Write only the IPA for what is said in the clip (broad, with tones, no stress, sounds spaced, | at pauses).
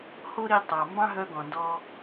h o˥ ɾ i˧ tˤ ɑ˩ m b ɑ̃˥ ɦ œ˧ ɡ ɔ̃˩ n d ɔ˧